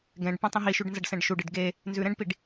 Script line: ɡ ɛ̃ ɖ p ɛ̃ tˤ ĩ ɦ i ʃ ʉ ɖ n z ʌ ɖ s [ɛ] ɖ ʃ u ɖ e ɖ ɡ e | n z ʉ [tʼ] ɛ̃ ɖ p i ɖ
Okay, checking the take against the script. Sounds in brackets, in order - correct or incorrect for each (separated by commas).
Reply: incorrect, incorrect